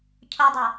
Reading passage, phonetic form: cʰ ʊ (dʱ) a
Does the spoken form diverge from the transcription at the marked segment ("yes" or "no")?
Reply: yes